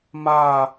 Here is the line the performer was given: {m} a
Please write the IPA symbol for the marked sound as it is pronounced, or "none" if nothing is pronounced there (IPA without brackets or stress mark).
m